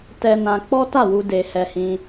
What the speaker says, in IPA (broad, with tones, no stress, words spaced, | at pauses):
tɛ˧ nã˧ k͡pɔ˦ta˦˨wu˧ de˧ hɛ˧hĩ˧